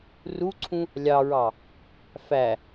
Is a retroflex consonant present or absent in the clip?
absent